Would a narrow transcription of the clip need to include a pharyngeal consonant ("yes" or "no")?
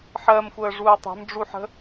yes